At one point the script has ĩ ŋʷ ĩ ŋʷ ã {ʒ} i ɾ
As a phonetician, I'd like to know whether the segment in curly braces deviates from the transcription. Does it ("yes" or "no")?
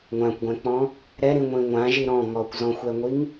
no